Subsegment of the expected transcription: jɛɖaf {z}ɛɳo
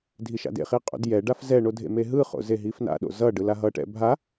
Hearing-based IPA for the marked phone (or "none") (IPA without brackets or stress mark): z